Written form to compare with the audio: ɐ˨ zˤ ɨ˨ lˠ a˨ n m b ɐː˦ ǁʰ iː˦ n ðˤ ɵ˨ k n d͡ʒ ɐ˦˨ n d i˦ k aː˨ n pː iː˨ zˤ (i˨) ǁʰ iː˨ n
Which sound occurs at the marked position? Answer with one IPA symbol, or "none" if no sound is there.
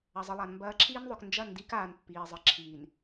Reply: ɨ˨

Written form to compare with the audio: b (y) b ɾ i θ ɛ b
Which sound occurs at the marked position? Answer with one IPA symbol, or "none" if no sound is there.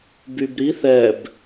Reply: y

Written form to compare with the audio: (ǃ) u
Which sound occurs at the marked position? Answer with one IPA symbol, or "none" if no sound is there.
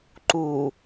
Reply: ǃ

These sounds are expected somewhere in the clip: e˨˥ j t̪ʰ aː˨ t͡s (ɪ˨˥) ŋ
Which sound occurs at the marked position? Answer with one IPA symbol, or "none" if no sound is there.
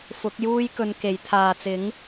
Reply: ɪ˨˥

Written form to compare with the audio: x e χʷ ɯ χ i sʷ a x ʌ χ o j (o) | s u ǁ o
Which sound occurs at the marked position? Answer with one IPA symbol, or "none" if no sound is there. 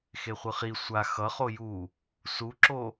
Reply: u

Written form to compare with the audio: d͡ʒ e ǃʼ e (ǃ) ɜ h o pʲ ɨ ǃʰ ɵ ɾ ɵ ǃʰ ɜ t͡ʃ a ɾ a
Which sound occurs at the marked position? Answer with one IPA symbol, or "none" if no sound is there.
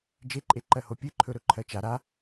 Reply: ǃ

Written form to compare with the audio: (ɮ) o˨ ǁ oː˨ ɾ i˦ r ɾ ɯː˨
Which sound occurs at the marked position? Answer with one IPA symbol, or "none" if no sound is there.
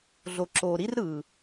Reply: ɮ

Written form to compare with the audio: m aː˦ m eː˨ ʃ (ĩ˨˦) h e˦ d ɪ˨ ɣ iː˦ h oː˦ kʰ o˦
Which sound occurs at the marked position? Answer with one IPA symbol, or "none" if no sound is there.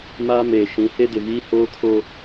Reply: ĩ˨˦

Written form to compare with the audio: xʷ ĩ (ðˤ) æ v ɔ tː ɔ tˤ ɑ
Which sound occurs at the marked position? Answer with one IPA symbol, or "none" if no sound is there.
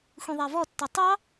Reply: ðˤ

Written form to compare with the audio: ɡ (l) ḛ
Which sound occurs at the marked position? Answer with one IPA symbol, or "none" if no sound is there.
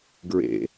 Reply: ɹ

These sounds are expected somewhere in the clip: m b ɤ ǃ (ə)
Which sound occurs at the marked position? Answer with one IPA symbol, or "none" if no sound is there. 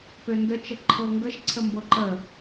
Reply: ə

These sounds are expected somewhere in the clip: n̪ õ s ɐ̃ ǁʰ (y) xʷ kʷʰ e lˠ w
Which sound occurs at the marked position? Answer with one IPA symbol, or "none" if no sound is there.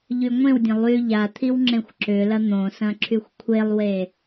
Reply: y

